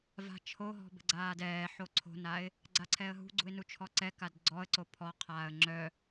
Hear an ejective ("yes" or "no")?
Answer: no